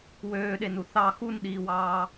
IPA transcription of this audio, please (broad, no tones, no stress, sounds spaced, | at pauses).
w øː ɗ e n u θ ɑ x u n ɗ iː w ɑː